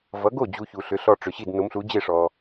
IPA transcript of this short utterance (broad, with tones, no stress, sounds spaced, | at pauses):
v ʌ˩˥ ɡ o˥˩ d͡ʑ u˧ ç u˩ ɬ ʏ˩˥ ɬ ɔ˧ ʈ͡ʂ ʏ˩ ɕ i˥˩ d n o˩˥ m ɬ u˩˥ d͡ʑ e˥˩ ʂ ɔ˩